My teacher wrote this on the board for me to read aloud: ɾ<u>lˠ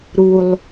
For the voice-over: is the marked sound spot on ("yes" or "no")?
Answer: yes